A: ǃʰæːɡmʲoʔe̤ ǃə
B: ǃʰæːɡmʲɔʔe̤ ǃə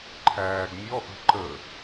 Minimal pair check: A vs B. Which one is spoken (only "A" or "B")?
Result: B